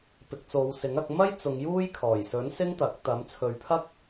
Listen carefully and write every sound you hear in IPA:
p ɪ˨ k̚ t͡s o˨˧ w s ɪ˨˥ ŋ ɐ˨˥ k̚ m ɐ˥ j t͡s ʊ˨˧ ŋ j uː˥ j kʰ ɔː˨˩ j s ɵ˨˥ n s ɪ˥ ŋ t̪ ɐ˨˥ k̚ t̪ ɐ˨˥ m t͡sʰ ɵ˨˧ ɥ pʰ ɐ˥ k̚

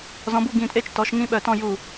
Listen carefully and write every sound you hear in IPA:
z ɔ̃˨˦ b u˥˨ ɡ ĩ˧˩ tʼ e˥˨ t͡ʃ t ɔ˨˦ ʃ ŋ ĩ˦ ɓ œ˧˩ t ɔ̃˥˨ j u˧˩

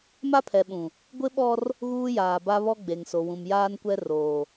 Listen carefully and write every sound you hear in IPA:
m a˦ pʰ ɛ˨ ɓ ũ˨ | ɡʷ ɪ˦ ɓ ɔ˦ r | ɣ uː˦ j aː˨ b a˦ β ɔ˦ ɡ͡b e˨ ŋ s o˨ w ũ˨ m j aː˦ n kʷ ɛ˦ r oː˨

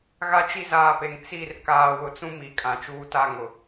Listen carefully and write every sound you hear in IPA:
ɣ a˦ t͡ʃ i˦ z aː˨ p e˨ ŋ t͡s i˦˨ r k aː˨ w ʊ˨ t͡s ũ˦ m i˨˦ kʼ ã˨ t͡ʃ uː˦ t a˦˨ ŋ ʊ˨

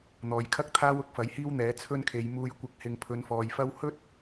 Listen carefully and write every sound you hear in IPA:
n̪ ɔː˨˧ j kʰ ɐ˥ k̚ t̪ʰ aː˥ w ʊ˥ k̚ f ɐ˨˥ j h iː˥ w n̪ ɛː˨˥ t͡sʰ ɵ˥ n kʰ e˨˧ j m uː˧ j kʷ ɪ˧ k̚ h ɪ˨ ŋ pʰ ɵ˨˧ n f ɔː˨ j f ɐ˥ w h ɵ˥ t̚

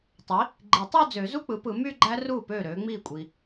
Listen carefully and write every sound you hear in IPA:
tˤ i˩˥ | ɡ͡ǃ i˨˩˦ tˤ o˥˧ d͡z ø˨˩˦ z u˥˧ k͡p ɯ˩˥ p ɯ˨˩˦ m y˥˧ ɡ͡ǃ æ˦˥ r uː˥˩ p øː˥˩ ɾ øː˩˥ ŋ͡m iː˥˩ kʷʼ iː˨

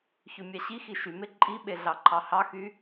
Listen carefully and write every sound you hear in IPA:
ç ø mʲ ɑ ɕ i x i ʃ y m e ǃʼ i ɓ e ɮ ɑ ǃʰ ɑ h ɑ x y

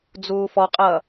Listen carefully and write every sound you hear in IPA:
d͡z uː f ɔ qʼ ʌː

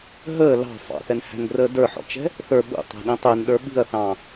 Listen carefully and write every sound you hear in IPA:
ɦ əː l ɑ̤ f ɑ̰ θ ɛ n h æ̤ n ɡ r əː d ə˞ ħ ɔ̰ t͡ʃ ɛ̤ | θ ə˞ ɓ ṵ tˤ æ̤ ɗ ĩ tˤ ɪː n ɗ ə˞ ɓ i̤ ɐ̯ θ ɑ̃ː

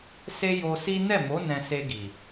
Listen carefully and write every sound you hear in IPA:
s e˦ j o˧ s i˦ n ɛ˦˨ m o˨˦ n ɛ̃˧ s e˧ ɡ i˨

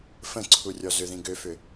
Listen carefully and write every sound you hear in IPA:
f ə̃ ǀʰ u rʲ ɔ z ʏ ð ĩ ɡ ø f ʏ

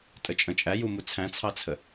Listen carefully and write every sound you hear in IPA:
tʼ ə t͡ʃʼ ə̃ t͡ʃʼ æ j u m u t͡sʰ æ̃ t͡sʰ ɑ t͡sʰ ə

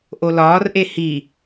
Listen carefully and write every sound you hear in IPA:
ʔ o l ɒː r ʔ e h i

